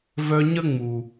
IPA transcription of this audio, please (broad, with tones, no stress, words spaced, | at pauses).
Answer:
vœ˧ɲə˦ ŋ͡mu˨